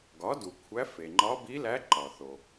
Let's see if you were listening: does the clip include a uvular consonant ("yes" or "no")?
no